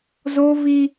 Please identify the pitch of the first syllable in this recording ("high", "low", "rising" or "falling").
high